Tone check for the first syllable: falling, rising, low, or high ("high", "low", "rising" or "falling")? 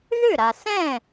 falling